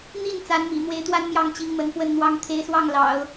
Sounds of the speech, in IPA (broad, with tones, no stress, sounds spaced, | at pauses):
n̪ i˥˩ n t͡s a˧˥ n m ḭ˨˩ n̪ w e˧˥ ɪ̯ t̪ w a˥ n m j ɑ˥˩ ŋ t͡ɕ i˧˥ ŋ m ə˧˥ n f w ə˥˩ n n̪ w ɑ˥ ŋ t̪ʰ e˧˥ ɪ̯ s w ɑ˥˩ ŋ l ɑ̰˨˩˦ ʊ̯